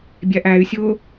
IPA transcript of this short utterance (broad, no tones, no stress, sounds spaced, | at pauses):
bʲ æ ʔ æ y̯ sʲ ʊː